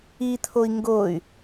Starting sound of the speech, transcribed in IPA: i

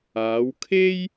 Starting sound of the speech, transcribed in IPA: aː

